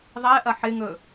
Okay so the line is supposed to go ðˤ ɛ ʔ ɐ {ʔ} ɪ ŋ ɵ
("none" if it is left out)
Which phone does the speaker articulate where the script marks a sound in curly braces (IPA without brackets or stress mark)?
ħ